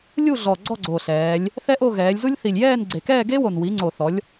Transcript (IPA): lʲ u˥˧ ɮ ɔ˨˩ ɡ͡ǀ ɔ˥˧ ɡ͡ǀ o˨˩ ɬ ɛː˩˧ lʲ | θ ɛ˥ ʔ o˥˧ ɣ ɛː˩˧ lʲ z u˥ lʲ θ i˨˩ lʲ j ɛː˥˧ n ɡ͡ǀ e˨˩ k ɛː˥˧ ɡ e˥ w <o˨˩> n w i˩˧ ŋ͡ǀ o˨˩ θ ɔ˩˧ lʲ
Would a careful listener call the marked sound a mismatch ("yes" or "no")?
no